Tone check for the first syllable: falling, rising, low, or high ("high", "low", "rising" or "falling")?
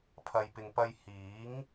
low